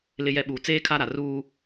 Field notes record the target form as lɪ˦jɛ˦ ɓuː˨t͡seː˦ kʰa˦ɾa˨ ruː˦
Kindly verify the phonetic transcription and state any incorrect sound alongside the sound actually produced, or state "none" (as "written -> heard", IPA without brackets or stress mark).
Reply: none